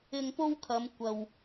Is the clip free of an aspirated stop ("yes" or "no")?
no